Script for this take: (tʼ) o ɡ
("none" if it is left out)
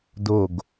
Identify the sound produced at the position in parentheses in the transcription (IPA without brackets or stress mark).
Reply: d